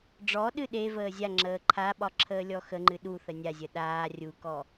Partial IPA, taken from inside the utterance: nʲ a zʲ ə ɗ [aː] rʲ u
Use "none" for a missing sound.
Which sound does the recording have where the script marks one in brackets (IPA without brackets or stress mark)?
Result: aː